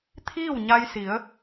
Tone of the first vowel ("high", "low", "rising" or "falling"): falling